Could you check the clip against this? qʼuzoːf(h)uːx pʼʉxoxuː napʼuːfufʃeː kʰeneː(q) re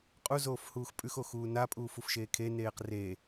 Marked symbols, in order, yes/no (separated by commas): yes, yes